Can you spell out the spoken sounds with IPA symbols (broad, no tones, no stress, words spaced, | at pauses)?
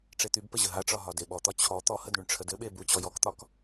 ʈ͡ʂet̪ybpə ʑəɦaʈ͡ʂɒ ɦɒdeɓɔt̪ɒ t͡ɕʰɔ t̪ɔhəd ɳyɳʈ͡ʂʰədɘɓe but͡ɕɔ jɔkt̪ɒk